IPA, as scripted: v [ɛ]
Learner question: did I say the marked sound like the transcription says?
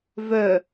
no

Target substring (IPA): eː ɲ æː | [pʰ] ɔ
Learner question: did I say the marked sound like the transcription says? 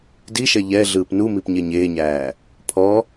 yes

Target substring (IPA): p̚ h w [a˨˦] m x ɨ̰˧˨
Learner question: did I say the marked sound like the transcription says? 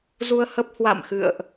no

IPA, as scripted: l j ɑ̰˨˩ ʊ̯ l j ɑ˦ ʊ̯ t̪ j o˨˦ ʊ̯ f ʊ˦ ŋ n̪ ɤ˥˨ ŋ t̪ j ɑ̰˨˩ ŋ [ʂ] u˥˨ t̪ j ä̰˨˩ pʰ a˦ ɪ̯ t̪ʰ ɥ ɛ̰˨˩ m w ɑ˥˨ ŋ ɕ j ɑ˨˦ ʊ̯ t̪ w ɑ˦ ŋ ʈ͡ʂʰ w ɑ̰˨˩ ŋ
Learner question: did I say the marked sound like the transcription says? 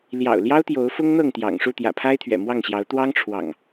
yes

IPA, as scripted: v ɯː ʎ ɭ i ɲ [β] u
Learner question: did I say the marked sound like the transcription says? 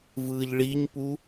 no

